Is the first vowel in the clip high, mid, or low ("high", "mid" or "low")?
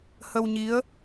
mid